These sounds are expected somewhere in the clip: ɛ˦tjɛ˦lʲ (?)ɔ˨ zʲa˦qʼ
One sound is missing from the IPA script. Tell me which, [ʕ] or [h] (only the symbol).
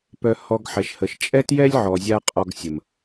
ʕ